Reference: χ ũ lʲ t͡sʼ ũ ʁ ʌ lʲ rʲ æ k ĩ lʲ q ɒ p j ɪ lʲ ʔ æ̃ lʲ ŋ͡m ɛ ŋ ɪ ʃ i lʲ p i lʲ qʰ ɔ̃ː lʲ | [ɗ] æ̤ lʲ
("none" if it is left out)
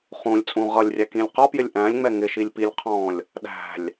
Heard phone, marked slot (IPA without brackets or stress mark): ɗ